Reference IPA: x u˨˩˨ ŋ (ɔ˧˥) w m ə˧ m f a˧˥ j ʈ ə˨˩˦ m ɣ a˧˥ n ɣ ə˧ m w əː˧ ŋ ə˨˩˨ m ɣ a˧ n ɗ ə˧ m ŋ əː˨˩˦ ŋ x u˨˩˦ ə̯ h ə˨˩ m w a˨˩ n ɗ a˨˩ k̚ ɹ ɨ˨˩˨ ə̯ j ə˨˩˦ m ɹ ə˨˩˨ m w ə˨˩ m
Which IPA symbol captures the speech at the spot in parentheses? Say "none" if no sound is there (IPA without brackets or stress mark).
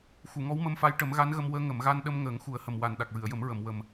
ɔ˧˥